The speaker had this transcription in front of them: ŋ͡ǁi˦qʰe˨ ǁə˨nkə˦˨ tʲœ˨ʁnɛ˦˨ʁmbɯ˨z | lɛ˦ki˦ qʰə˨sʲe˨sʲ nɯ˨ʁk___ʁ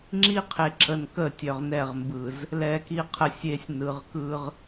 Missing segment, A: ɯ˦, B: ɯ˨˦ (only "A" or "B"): A